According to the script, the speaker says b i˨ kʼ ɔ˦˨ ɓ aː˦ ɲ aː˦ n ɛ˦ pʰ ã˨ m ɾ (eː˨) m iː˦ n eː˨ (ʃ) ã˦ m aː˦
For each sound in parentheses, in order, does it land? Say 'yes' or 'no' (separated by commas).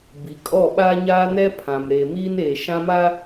yes, yes